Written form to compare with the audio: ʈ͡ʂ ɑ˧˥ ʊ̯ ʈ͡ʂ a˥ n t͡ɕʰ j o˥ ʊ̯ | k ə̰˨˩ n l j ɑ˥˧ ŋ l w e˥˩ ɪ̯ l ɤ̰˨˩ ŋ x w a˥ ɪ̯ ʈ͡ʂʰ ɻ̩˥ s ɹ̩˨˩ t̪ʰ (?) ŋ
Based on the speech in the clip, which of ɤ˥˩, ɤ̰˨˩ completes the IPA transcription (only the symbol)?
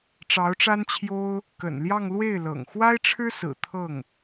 ɤ˥˩